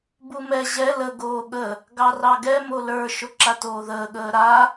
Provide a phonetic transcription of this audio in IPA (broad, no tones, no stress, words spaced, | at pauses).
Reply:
bumɛ ʑɛ lə ɡoːɠə | ɡɑrɑɡɛ molə˞ ʃoǁatoːðəː ɠəːɾa